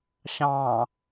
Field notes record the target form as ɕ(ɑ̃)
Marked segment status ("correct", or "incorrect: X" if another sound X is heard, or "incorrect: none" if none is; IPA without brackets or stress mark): correct